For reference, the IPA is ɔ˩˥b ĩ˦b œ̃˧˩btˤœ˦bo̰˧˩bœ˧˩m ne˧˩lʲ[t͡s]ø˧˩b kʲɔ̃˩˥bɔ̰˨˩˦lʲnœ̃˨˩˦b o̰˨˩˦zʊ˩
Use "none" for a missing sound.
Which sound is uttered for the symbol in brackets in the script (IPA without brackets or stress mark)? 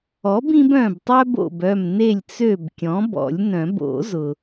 t͡s